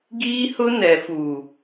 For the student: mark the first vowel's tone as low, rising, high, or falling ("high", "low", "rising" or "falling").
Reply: high